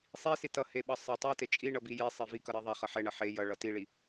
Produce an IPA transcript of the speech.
sˤ i s i t ʌ h e ɓ ʌ sˤ ʌ tˤ i t e t͡ʃʼ i ɳ ʌ b i j e sˤ e v i k ʌ ɾ e ðˤ ɛ χ ʌ ħ ɛ ɳ ʌ ħ e j ʌ ɭ ʌ t i ɭ i

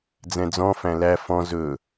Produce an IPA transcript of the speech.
d͡z ɛ̃ d͡z ɔ̃ f æ̃ l æ f ɔ̃ z ɵ

